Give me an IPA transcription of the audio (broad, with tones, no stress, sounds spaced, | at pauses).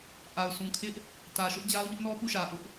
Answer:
ʔ a˨ ʊ̯ s ũ˨ kʰ ɪ˦ ʔ | t ä˨ ʃ ʊ˦ ʔ d͡ʑ a˦ ʊ̯ ɲ ʊ˦ ʔ n ɔ˦ p u˦˨ ʃ ä˨ ʔ ʊ˦ ʔ